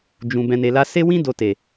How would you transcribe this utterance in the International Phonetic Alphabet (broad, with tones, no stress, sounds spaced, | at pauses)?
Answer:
d͡ʒ ũ˨ b ɛ̃˨ n e˨ l a˧ s e˦ w ĩ˦ d o˧ t e˨